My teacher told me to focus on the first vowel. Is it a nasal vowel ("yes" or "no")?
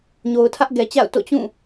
no